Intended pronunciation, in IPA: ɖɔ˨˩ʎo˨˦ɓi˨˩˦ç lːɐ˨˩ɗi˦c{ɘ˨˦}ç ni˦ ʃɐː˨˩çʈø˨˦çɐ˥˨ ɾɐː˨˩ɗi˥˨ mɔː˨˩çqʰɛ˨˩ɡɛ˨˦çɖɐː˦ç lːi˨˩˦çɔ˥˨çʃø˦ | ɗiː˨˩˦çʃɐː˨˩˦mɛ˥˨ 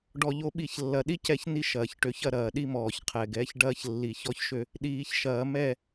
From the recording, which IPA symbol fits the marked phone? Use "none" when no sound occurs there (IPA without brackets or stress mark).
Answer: ɛ˨˦